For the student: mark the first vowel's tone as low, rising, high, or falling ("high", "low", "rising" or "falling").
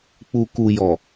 low